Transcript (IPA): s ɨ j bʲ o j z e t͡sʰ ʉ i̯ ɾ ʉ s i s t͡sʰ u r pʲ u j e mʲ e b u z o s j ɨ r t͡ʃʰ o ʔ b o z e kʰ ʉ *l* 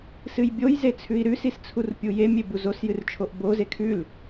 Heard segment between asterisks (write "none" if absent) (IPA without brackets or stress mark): l